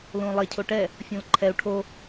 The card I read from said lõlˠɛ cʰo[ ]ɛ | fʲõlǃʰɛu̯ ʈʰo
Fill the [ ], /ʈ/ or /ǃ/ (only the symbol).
ʈ